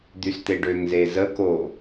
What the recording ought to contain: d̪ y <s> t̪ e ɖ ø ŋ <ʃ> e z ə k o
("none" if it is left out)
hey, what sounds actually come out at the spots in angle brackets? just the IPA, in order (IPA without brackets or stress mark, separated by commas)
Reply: s, z